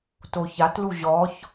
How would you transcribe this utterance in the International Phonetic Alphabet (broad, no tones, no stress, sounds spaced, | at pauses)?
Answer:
t o ç a t l u ʑ ɔ ç